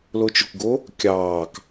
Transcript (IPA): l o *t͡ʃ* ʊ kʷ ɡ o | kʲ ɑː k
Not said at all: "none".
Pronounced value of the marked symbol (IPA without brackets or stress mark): t͡ʃ